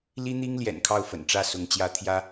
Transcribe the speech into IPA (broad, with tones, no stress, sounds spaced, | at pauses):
l i˥ n̪ i˥ ŋ l j ɛ̰˨˩ n kʰ ɑ˥˩ ʊ̯ f ə̰˨˩ n ʈ͡ʂ ä˥˩ s ʊ˧˥ ŋ t͡ɕ j ä˥ t̪ʰ j ä˥